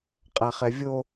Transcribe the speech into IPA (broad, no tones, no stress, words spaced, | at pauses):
qʼaχɛvʲo